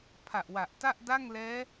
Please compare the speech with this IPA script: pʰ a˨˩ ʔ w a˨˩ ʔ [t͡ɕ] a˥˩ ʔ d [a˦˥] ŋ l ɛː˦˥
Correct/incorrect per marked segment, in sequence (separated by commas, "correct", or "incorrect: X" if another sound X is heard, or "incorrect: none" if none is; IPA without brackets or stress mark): incorrect: t, incorrect: a˥˩